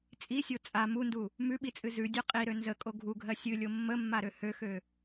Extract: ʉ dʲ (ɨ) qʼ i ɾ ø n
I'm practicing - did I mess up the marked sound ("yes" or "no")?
yes